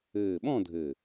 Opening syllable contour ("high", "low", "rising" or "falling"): low